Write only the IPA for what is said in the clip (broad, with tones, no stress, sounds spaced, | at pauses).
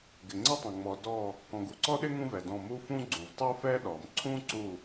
ɡ ɪ˨ ŋ͡ǀ ə˥ tˤ ə̃˨ ŋ͡m ɔ˨ d ɔ˦˨ | k ɔ̃˨ ɡ u˨ ǀ ɔ˥ ɗ ɪ˥ ŋ ũ˥ v ɛ˨ d ɔ̃˦˨ m u˥ f ũ˥ ɡ͡ǀ ũ˨ v tˤ u˥ f ɛ˥ ɗ ɔ˨ m ǀʰ ũ˥ ǀ u˦˨